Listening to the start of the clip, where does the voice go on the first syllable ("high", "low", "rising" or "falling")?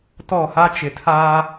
falling